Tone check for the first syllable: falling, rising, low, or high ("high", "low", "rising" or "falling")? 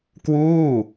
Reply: falling